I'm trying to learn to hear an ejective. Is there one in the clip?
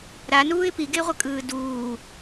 yes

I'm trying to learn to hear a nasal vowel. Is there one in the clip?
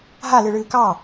no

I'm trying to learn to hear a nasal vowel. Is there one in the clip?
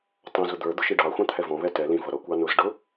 yes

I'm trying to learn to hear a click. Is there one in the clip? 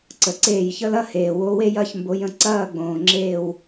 yes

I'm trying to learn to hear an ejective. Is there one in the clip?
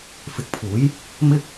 no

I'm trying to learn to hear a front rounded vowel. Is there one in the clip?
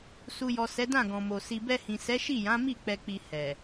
no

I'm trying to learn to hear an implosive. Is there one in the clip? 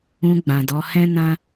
no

